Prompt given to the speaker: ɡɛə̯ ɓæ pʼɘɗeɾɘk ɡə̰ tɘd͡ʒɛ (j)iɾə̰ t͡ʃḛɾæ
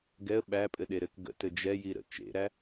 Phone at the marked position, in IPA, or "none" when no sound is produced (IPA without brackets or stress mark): j